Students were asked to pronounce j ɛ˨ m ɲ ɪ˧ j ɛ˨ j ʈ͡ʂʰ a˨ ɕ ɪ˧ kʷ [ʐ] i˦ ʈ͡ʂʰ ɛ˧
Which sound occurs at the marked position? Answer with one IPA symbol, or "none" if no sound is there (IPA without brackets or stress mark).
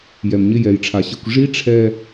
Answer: ʐ